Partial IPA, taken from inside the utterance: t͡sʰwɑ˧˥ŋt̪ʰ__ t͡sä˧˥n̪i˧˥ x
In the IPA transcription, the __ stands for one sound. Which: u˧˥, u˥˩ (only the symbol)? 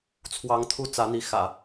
u˥˩